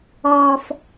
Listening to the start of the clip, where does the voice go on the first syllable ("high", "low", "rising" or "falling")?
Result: low